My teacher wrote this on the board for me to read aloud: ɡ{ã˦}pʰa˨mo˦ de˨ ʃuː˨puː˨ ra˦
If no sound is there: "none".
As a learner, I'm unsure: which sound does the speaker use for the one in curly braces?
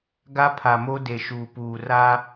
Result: a˦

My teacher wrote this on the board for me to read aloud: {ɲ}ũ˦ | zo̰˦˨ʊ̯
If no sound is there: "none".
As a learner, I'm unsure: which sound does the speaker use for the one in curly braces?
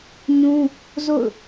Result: ɲ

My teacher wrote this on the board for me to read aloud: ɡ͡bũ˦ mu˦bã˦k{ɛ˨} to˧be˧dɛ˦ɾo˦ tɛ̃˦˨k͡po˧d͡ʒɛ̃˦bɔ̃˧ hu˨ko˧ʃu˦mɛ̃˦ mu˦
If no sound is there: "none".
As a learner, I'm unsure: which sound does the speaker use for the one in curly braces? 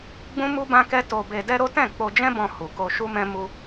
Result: ɛ˦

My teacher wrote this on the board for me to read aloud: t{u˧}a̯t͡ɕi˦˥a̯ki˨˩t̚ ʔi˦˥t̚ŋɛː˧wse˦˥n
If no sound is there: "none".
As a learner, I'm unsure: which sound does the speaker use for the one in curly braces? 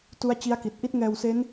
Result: u˦˥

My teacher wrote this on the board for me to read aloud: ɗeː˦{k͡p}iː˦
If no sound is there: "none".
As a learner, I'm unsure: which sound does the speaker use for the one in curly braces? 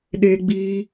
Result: ɡ͡b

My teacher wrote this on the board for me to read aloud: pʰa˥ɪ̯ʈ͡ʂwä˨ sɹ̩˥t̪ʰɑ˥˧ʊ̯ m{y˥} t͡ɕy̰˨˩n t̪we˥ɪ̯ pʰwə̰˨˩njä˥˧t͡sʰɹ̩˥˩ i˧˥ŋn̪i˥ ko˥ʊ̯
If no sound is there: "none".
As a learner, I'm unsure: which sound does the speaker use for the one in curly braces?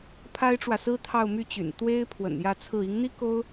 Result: y˥˩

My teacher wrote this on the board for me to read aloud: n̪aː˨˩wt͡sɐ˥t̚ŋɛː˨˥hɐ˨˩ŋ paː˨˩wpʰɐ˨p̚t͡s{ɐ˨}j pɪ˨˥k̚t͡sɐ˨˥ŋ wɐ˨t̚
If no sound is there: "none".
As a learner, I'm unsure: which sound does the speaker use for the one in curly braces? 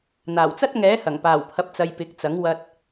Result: ɐ˨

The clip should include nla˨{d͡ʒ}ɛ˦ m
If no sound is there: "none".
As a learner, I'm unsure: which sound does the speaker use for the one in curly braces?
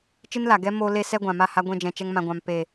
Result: ɡ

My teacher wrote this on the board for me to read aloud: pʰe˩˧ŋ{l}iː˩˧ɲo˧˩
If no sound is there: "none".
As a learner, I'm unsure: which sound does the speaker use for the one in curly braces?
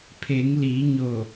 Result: l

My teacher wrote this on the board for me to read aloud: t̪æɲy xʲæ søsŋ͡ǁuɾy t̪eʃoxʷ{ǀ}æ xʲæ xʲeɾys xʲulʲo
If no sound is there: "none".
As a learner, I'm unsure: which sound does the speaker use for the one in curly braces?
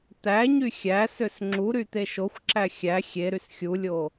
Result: ǁ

